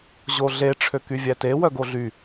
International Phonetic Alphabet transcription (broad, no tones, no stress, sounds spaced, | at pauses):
ʑ o ɮ e ʈ͡ʂʰ ø k y vʲ æ t e w œ ɡ o ɮ y